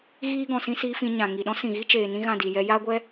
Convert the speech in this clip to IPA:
ɣ iː˦ ɡ ɔ̃˨ s ĩ˦ s iː˧ f ĩ˧ ɲ ã˨ ŋ i˨ ɗ ɔ̃˦ s ĩ˨ ɣ i˦ t͡ʃ eː˨ n ĩ˦ ɣ ã˦˨ d i˨ j ɛ˧ j aː˦ ɡʷ ɛ˦

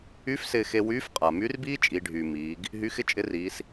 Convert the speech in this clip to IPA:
y˧˥ f s ɪː˧ x e˧ w yː˧˥ f qʼ a˩ m y˧˥ r b iː˥ t͡ʃʼ i˩˧ ɖʱ yː˩ m iː˩˧ ɡ | ɦ y˧˥ x ɪ˥ t͡ʃʼ ɪ˧˥ r iː˩˧ s

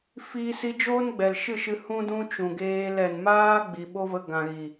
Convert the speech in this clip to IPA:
f i˦ s i˦ d͡ʒ oː˦ n ɡ͡b ɛ˨ l ʃ ɨ˦˨ ʃ ɨ˧ h ũ˦ d ũ˦ t͡ʃ ũ˨ ɡ eː˧ l ɛ˨ n m aː˦ ɡ͡b i˨ ɓ o˦ v ə˧ ɡ ã˨ ɣ i˨

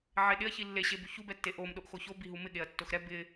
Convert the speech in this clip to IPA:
ʕ e ɗ ɪ ɐ̯ ç i lː e ɕ e b u ç u b ɛ tː e ʔ o m ɗ o ʔ x o ç o b i ɦ u m ɪ ɠ e ɐ̯ tː o x ɾ ɛ b ɪ

